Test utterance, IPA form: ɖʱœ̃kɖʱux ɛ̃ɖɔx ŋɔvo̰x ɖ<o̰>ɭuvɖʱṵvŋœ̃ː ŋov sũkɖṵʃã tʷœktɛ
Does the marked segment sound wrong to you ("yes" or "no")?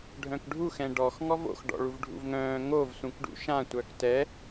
yes